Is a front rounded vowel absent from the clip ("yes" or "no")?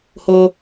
yes